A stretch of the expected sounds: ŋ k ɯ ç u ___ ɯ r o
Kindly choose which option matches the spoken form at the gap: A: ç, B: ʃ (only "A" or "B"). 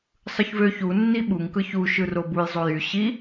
B